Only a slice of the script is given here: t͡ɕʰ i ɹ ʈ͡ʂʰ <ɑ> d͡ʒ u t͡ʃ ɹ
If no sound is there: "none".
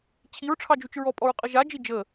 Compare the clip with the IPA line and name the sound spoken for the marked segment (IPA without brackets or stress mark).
ɑ